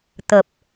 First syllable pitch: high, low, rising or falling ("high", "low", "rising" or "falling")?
low